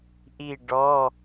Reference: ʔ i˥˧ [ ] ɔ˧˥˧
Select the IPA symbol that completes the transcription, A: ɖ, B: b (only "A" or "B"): A